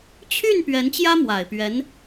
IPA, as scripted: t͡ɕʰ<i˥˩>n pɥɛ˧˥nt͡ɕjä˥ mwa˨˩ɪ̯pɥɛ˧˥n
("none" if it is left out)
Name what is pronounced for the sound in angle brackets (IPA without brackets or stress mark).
y˥˩